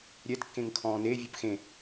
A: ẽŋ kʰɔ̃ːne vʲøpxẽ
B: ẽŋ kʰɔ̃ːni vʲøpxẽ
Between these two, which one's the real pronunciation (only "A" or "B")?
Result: A